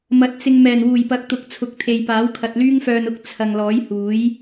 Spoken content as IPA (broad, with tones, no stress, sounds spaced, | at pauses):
m ɐ˨˥ t̚ t͡s ɪ˧ ŋ m ɛː˨˩ n w uː˨˩ j p ɐ˨˥ k̚ t̪ ʊ˨ k̚ t͡sʰ ʊ˨ k̚ t̪ʰ e˨ j p aː˨˥ w kʰ ɐ˨ t̚ l yː˥ ŋ f œː˧ n ʊ˥ k̚ t͡sʰ ɐ˨ ŋ l ɔː˨˥ j h uː˨˥ j